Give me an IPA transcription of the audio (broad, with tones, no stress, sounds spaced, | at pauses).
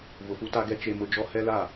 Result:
v ʊ˨ f u˦ t a˦ ɡ ɛ˦ t͡ʃ e˦ m ʊ˦ d͡ʒ ɔ˦ h ɛ˦ l a˦˨